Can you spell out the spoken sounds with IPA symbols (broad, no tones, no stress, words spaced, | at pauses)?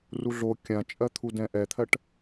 ruɮo kʲãt͡ʃʼɜt̪ʰu dɛ̃ʔɛt̪ʰɜʈ